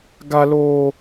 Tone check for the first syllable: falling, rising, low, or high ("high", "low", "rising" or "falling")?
high